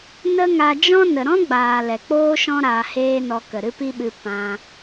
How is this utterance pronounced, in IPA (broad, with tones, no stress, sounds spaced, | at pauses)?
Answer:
n ə˦ ŋ a˧ d͡ʒ ɔ̃˦ n ə˨ ɾ ɔ̃˦ ɡ͡b aː˨ l ɛ˨ k͡p oː˦ ʃ ɔ̃˦ ɾ aː˧ h eː˦ n ɔ˧ k ə˨ ɾ ɨ˦ p i˦ ɓ ɨ˧ p ã˧